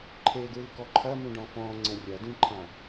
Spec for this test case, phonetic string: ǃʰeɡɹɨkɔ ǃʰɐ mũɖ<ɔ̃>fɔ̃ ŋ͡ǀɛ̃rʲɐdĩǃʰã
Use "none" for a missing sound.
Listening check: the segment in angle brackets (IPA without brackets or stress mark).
ɔ̃